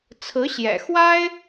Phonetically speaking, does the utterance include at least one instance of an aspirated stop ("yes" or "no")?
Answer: yes